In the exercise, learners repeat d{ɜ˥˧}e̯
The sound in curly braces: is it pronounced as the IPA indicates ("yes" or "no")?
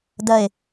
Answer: yes